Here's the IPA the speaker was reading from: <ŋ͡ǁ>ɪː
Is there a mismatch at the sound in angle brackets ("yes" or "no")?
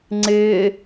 yes